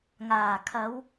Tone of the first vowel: low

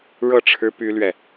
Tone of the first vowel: falling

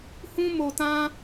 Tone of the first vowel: high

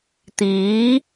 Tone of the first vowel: rising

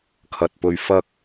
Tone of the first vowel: low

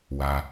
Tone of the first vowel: low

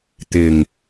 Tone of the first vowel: low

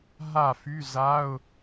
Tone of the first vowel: falling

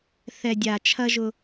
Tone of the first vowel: low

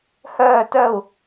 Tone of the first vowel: falling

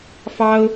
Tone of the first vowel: high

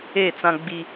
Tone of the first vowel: falling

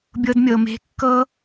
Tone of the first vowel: high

